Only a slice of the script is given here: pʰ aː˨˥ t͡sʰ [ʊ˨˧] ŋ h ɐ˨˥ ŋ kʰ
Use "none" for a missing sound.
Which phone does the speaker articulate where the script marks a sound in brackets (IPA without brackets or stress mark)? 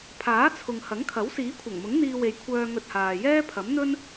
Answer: ʊ˨